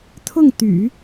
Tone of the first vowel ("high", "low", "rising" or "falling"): falling